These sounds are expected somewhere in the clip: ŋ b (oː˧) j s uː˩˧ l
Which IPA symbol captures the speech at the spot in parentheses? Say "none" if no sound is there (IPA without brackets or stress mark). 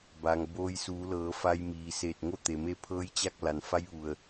oː˧